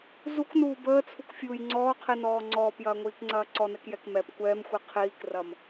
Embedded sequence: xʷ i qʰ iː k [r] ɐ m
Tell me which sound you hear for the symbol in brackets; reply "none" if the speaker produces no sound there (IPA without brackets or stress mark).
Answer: r